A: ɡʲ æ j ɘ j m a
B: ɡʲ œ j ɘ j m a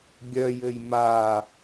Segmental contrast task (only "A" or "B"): B